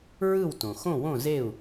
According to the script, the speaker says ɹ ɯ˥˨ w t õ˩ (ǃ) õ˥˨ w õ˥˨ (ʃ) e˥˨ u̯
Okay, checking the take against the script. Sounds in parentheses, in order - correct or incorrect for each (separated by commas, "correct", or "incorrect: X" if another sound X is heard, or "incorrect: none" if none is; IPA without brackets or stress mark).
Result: incorrect: x, incorrect: z